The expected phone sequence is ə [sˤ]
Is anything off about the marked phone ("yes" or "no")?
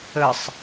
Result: no